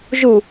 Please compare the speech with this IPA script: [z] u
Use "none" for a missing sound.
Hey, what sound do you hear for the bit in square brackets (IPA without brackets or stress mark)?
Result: ʒ